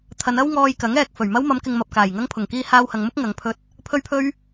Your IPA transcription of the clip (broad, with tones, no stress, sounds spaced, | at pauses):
t̪ʰ ɐ˨˧ n ɐ˥ w ŋ ɔː˧ j k ɐ˨˥ ŋ ɛː˨ k̚ f ɵ˨˩ ɥ m ɐ˥ w m ɐ˨˧ m k ɪ˨ ŋ m ɐ˨ p̚ k aː˨˩ j ŋ ɐ˥ ŋ pʰ ʊ˨˩ ŋ k iː˧ h aː˧ w h ɐ˨ ŋ m ʊ˥ k̚ ŋ ɐ˨˧ ŋ pʰ ɵ˥ t̚ | pʰ ɵ˥ ɥ pʰ ɵ˥ ɥ